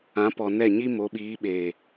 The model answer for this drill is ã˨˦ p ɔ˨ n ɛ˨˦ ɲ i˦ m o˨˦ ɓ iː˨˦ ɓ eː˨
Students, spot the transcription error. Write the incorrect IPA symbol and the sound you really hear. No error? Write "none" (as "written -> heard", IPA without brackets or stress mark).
ɛ˨˦ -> ɛ˦˨